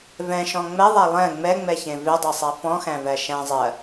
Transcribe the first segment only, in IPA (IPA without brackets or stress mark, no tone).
v